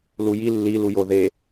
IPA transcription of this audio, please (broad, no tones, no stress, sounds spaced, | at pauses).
l u j i lː i l u j o ð e